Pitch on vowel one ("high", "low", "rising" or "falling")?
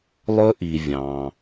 high